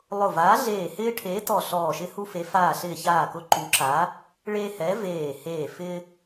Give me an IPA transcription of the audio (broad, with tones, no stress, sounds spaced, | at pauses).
lˠ ʊ˧˩ v aː˨˥ ɮ eː˧˩ h ɪː˦ ʈʰ eː˨˥ t ɔ˧˩ ɬ ɔː˧˩ ʃ ɪ˦ h u˦ f e˨˥ f aː˧˩ ɬ ɪː˧˩ ç aː˧˩ k ʊ˨˥ ǃ u˨˥ ǁ aː˨˥ | ɭ e˦ h ɛ˨˥ v eː˧˩ h eː˧˩ f ɪː˦